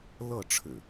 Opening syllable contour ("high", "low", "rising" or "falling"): falling